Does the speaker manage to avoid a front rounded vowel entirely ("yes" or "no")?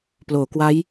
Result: yes